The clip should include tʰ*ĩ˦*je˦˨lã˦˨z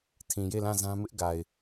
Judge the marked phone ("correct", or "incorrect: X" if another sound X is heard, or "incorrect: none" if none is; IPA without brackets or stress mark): incorrect: ĩ˨